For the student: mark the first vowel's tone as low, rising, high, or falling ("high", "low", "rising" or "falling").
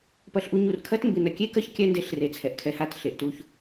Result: high